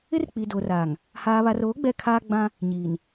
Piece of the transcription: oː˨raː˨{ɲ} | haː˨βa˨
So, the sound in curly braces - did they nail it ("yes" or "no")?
no